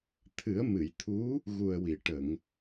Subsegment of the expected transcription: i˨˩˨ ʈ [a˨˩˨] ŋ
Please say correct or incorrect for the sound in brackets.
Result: incorrect